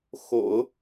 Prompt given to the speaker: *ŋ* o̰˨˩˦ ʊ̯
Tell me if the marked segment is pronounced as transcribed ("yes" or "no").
no